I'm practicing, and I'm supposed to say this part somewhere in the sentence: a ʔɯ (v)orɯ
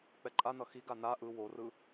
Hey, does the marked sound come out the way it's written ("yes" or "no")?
no